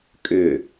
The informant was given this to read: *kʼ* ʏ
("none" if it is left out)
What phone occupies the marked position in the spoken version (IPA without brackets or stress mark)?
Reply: kʼ